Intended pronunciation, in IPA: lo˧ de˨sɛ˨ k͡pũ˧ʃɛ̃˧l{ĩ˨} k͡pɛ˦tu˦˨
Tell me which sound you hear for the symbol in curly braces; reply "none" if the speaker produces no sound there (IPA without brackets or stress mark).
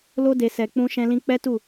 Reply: ĩ˧